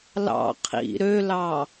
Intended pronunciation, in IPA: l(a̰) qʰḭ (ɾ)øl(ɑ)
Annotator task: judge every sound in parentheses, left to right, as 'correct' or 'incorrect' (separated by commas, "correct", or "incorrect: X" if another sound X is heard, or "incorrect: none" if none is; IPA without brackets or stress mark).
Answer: incorrect: ɑ̰, correct, correct